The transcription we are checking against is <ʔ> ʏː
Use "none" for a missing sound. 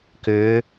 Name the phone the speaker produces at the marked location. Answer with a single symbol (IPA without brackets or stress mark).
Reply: k